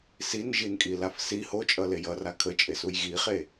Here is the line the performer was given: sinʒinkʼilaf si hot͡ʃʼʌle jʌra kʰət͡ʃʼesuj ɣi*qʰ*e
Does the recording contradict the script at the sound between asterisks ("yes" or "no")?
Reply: yes